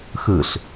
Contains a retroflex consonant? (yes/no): no